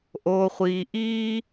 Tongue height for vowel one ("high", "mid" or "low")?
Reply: mid